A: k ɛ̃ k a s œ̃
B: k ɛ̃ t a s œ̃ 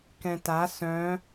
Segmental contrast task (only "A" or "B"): B